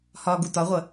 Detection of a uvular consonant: present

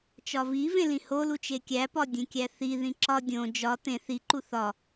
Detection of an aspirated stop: absent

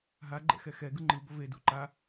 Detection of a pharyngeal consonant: absent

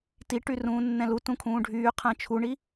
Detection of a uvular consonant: present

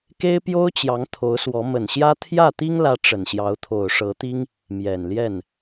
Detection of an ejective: absent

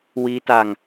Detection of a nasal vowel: absent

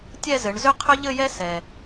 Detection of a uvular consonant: present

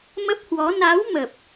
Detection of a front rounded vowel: absent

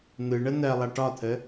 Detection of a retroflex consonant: present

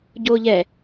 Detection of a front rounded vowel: absent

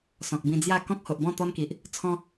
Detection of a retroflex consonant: absent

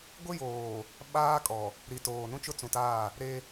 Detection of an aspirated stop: absent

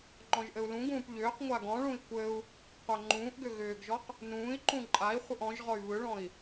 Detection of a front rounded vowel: present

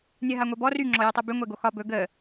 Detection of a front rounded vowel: present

